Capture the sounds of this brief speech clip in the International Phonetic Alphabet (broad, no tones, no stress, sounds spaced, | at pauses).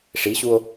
ʂ i ɕ u o̯